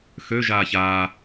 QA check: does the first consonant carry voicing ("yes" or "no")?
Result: no